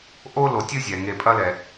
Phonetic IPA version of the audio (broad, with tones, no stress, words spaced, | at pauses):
ʔo˦ lo˨ tʲɨ˦zʲɛ˩ŋe˨ pʼɐ˥lɛ˩